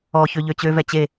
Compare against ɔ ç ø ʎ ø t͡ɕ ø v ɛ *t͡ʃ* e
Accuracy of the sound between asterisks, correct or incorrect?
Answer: incorrect